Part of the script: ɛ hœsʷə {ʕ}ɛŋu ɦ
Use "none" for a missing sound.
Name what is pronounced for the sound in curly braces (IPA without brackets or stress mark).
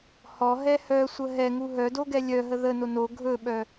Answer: ɦ